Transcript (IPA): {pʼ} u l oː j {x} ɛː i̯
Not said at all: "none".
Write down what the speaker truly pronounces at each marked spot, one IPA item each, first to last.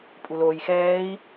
pʼ, x

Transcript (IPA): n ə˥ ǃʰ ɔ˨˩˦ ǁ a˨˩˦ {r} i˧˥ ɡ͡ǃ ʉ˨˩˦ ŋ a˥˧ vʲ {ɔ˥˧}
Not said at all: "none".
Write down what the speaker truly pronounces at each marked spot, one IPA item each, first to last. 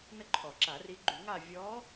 r, ɔ˧˥

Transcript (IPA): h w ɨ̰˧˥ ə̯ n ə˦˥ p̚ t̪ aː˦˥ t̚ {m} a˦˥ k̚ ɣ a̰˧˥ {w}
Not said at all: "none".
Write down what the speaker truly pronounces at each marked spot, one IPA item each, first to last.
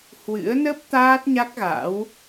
ɲ, w

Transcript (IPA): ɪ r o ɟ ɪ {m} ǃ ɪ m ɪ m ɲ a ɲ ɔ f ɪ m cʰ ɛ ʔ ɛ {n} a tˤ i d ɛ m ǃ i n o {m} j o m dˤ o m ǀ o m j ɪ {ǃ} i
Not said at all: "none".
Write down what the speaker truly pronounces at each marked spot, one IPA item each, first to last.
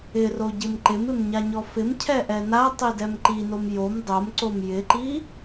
m, n, m, ǃ

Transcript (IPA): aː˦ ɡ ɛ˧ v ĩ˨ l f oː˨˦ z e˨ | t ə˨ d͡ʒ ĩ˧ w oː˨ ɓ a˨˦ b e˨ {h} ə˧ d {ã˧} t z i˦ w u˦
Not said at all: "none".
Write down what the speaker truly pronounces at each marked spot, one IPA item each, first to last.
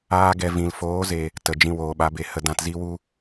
h, ã˧

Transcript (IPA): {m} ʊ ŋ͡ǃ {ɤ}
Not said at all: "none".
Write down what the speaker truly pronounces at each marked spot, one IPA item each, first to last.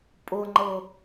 pʼ, ɤ

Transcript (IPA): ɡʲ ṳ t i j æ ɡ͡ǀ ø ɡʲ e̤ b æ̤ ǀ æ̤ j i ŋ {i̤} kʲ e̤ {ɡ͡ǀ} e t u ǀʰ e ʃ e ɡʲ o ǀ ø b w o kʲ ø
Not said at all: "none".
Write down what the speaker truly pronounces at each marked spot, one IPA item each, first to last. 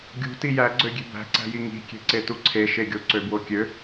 i̤, ǀ

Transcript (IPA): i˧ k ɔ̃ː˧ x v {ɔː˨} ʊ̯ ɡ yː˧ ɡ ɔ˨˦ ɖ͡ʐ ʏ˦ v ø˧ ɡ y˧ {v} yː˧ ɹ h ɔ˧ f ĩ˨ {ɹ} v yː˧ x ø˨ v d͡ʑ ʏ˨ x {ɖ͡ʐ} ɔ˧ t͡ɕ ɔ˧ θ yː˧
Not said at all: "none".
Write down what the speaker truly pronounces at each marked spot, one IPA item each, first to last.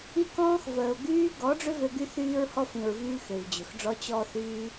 əː˨, θ, ɹ, ɖ͡ʐ

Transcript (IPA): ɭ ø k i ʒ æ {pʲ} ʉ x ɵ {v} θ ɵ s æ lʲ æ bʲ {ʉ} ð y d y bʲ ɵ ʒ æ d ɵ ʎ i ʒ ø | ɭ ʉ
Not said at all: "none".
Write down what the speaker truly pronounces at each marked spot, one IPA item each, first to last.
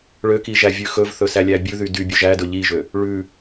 vʲ, v, ʉ

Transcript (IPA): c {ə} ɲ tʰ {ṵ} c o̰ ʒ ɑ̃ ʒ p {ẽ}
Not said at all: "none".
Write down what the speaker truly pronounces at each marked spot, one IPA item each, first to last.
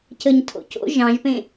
ə, o̰, ẽ

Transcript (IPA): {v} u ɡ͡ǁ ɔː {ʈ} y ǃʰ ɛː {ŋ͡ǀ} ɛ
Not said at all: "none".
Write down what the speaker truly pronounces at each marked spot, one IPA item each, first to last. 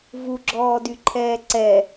v, d, ǀ

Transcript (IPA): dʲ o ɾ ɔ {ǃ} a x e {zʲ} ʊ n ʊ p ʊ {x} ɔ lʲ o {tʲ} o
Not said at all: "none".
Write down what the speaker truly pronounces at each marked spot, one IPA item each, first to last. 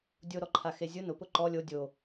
ǃʰ, zʲ, ǃ, dʲ

